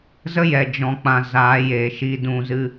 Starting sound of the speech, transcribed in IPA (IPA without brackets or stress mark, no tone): z